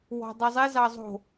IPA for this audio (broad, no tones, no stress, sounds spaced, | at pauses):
w ɔ̤ dˤ i zˤ i z ɑ zˤ o̤